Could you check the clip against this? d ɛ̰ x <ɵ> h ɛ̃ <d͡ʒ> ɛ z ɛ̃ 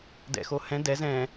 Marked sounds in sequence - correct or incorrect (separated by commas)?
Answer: incorrect, incorrect